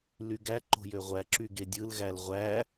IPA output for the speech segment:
lyɡæ ǃo̤jøʁʷæ ǁyɡedʲɯl ɣælʁʷæ

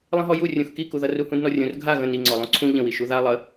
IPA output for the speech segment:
lˠə̃ɦɔju rʲũxkikuðʌ ruhũdnɔrʲũr ɡʱa ɣə̃ niŋ͡ǀɔlˠũ ǀʰũ ʎə̃wi ʃuða lˠə

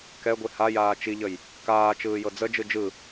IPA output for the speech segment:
kɛɡʷi hajaː t͡ʃiʎəj | kaː t͡ʃɯːjɤd͡zəd͡ʒɯ d͡ʒɯ

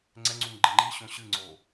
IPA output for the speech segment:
ŋ͡ǀɛŋ͡ǀuŋ ɡ͡ǃeŋ͡ǃiɕõ ɕɨŋ͡ǀo

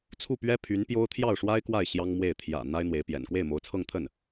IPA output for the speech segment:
t͡sʰu˥˩pɥɛ˥ pʰy˧˥npjo˥ʊ̯ t̪ʰjɑ˥˩ʊ̯ʂwa˥ɪ̯kwa˥˩ɪ̯ ɕjɑ˥ŋmwe˥˩ɪ̯ t̪ʰjä̰˨˩ n̪a˥ɪ̯n̪we˧˥ɪ̯pjɛ̰˨˩n kwe˥˩ɪ̯mo˧˥ʊ̯t͡sʰɤ˥˧ŋt̪ʰə˥˩n

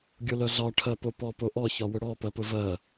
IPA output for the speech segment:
ɡʲʊlœɮɒ ʈʰɜpopɔ poʔɔ çɒwʊɽɔ pɜpʊvɜ

